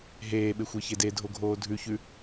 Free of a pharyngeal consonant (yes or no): yes